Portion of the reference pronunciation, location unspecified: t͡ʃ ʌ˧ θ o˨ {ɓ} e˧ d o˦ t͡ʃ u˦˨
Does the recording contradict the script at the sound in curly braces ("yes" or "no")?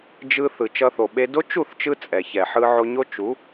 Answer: no